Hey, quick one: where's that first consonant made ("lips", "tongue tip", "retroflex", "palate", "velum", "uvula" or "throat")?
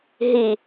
throat